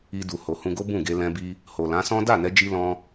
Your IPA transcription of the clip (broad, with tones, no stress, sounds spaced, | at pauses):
i˧ d u˨ h o˨ h ũ˧ ɡ o˦ b ũ˦˨ ɡ e˧ l ɛ̃˧ b i˧ | h o˨ l ã˨˦ s ɔ̃˦ d a˦˨ n ɛ˧ d͡ʒ i˧ l ɔ̃˧